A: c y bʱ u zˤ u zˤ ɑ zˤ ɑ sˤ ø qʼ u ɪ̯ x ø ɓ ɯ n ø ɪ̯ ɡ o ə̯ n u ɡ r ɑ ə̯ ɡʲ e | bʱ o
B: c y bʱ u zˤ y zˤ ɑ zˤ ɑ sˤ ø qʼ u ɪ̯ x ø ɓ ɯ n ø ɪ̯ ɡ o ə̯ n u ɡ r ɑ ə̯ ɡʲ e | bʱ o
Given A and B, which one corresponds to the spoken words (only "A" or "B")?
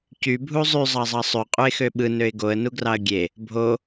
B